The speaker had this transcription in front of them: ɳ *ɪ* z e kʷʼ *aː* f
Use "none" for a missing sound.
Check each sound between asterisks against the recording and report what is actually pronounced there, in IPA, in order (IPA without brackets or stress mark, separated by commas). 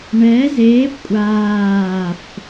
ɛ, aː